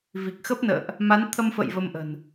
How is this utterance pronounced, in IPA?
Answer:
vi˨˩k̚xə˦˥p̚nə̰ː˧˨ʔ | ma˨˦nt̪ʰə˧mfə̰˧˨j və˧mʔə̤˨˩n

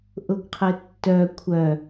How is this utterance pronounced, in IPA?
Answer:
ʔʊɡqʰɘtːœ kʷʰœ

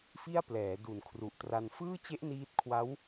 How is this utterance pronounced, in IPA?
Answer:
fi˥˩a̯ plɛː˩˦du˨˩nkʰru˨˩ʔtra˧n fɯː˥˩t͡ɕe˦˥ʔ niː˦˥t̚kʰwa˦˥w

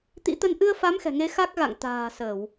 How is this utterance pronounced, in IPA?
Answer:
t̪ḭ˧˥t̪ə˧n ʔɨ˧ə̯fa˨˦m xɛ̤˨˩ŋe˨˦ xa˦˥k̚ɣa̰˧˨ŋ t̪a̤ː˨˩ sə˧˩˨w

